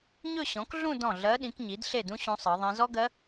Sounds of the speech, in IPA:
ɲɵ˥˧ɕɔ̃˩˥kɮũ˥˧ dɔ̃˥˩ ɮɜ˧˥ɗĩ˩˥kɲi˩˥d ɬe˥˩dũ˥ ɕũ˧˥sˤɜ˩˥ðˤĩ˧˥ zɔ˥ɡɜ˧˥

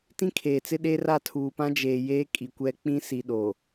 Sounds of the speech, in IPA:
tĩ˦kʰeː˨t͡sɪ˦ ɗe˦ra˦˨ tʰuː˨pã˦ d͡ʒeː˨jeː˦ kʼi˨ kʷɛ˦k͡pĩ˦ si˨ɗo˨

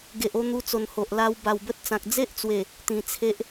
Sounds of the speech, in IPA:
ɡe˨ʔo˥˧n̪u˧t͡so˨˩n ho˨ʔla˧w ba˨˩wbə˦t̚t͡sã˨k̚ d͡ze˦ʔt͡swe˨˩ | t̪ĩ˨˩t͡sʰe˦ʔ

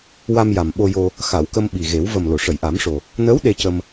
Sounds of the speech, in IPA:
wa˧mja˨˩mɓo˧ jo˧ | xa˨˩˨wkə˧m ɓi˨˩ɣe˨˩˦w və˨˩m lo˨˩˨ʂə˨˩˨jʔa˨˩˦mʂo˨˩ | nəː˧˥w ɗe˧cə˧m

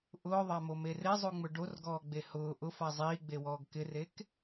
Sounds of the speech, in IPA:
ʔʊːðˤamome rezˤuŋ͡mʊ ɖorɡɔːɡ͡be hʊː ʔʊfa zˤiːɡ͡bewɔːɡ kɪrek

